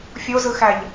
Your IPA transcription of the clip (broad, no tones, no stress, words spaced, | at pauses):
fʲozɯxæʎ